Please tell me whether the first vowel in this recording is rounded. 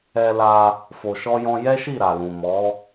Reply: no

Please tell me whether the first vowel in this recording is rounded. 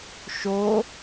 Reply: yes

